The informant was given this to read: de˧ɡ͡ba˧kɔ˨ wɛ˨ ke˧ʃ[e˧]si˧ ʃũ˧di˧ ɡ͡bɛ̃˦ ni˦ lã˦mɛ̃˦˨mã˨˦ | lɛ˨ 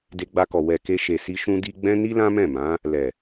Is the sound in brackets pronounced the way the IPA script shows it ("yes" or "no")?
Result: no